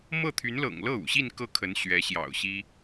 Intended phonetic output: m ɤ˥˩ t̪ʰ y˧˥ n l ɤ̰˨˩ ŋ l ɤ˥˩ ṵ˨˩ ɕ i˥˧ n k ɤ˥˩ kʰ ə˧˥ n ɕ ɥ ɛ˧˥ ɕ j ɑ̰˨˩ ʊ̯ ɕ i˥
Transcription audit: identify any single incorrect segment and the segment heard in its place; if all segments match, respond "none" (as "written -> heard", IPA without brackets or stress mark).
none